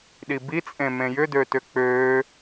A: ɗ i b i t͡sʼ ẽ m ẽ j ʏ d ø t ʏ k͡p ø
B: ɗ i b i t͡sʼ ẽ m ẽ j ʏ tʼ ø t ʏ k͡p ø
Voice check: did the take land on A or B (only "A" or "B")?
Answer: A